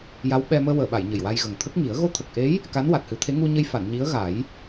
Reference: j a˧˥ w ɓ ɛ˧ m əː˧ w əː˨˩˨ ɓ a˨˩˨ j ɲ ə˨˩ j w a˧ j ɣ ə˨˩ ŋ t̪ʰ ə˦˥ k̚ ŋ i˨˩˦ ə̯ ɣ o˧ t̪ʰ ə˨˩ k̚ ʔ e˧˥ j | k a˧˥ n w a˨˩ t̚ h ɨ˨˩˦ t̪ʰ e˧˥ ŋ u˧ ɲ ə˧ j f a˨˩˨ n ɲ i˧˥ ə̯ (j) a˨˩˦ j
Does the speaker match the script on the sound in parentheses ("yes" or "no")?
no